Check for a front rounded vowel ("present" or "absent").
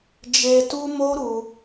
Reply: absent